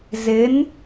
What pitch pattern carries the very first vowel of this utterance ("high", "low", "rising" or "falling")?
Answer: rising